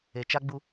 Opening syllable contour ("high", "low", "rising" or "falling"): low